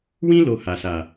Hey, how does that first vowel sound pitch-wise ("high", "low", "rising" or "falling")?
high